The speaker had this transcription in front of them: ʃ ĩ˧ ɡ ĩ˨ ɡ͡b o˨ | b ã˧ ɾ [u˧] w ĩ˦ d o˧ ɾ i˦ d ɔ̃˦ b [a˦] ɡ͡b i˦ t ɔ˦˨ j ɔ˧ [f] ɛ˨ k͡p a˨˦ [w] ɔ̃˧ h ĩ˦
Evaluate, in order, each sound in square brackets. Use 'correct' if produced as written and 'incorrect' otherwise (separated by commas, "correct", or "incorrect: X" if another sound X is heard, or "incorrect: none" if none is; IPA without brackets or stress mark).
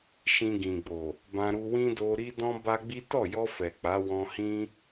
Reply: correct, correct, correct, correct